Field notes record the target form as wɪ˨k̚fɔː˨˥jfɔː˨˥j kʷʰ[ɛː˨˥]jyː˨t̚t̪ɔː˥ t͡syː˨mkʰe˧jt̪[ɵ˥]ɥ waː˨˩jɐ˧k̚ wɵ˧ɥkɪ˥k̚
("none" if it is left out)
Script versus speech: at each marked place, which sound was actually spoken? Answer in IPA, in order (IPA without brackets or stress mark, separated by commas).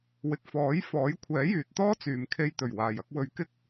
ɛː˨˥, ɵ˨˩